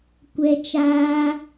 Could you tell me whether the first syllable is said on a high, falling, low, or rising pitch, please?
high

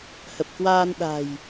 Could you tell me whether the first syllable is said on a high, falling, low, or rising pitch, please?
low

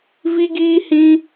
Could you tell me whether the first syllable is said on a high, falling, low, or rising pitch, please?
high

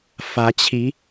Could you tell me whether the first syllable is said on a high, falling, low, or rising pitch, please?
rising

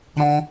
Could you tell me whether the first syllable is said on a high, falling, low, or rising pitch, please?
high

